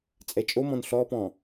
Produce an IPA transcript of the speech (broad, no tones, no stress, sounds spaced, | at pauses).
t͡sʼ ɛ t͡ʃʼ o m ɔ̃ n ɬ ɔ p ɔ̃